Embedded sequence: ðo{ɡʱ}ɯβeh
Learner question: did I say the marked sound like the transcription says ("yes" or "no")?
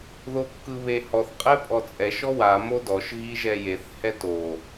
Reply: no